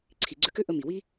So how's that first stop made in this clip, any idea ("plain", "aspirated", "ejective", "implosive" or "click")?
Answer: click